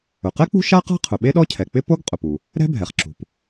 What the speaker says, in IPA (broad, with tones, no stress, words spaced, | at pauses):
ʊ˩qɛ˥k͡pṳ˥ ʃa˥ qa̤˥qʰʊ˩ ɓe˥ɗɔ˥cʰɛ˩k͡pɪ˥ po˥ɡ qʼʊ˩pu˩ | ɾɛ̤˥bʱɛ˩χ ǁṳ˩p